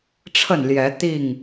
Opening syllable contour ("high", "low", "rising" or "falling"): falling